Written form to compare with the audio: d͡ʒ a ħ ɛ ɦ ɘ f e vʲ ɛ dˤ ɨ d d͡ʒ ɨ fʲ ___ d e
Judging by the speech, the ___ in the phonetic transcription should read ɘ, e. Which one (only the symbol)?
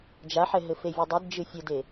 ɘ